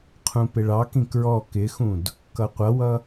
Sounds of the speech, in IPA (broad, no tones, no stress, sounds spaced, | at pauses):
qʰ ũ p ɪ ɭ ɑ k ĩ k ɹ ɔ k ɪ x ũ d | k ʌ qʷ ʌ w ʌ